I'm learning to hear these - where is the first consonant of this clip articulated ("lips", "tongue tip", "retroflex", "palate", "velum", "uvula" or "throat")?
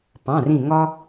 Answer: lips